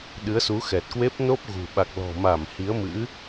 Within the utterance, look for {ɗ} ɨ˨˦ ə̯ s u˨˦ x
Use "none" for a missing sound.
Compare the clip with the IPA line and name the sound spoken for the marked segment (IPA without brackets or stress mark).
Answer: ɗ